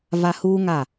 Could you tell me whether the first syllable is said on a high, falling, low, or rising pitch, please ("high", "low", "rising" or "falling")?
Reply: low